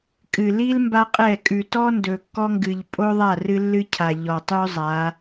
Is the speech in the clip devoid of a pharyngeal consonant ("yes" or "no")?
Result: yes